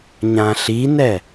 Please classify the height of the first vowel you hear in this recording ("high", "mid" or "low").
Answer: low